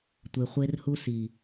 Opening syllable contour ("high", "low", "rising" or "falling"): low